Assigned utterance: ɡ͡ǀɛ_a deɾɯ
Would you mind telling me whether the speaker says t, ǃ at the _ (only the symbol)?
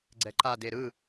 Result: ǃ